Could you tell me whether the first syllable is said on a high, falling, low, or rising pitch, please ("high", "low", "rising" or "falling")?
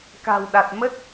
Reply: low